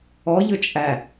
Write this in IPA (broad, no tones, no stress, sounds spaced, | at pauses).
ɔ ʎ ɵ t͡ʃʼ æ